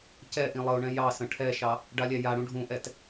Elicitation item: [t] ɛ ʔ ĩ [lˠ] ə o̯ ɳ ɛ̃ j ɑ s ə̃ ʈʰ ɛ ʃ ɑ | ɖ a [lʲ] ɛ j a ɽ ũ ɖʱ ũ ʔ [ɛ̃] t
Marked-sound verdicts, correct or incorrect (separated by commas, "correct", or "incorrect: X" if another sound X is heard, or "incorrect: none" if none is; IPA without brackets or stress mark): incorrect: c, correct, correct, incorrect: ɛ